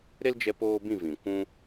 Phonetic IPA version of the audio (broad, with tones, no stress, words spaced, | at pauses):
ɾe˦ld͡ʒɛ˧ poː˦bĩ˦˨vĩ˨ kʷũ˦